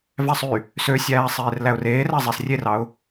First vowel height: low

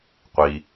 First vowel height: high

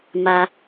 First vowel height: low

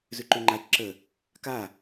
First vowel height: high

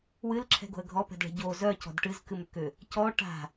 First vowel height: high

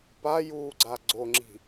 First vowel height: low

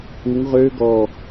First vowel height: high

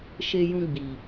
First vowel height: mid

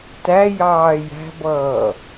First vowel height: low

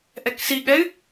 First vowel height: mid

